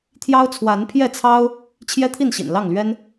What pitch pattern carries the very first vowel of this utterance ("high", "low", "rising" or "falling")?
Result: high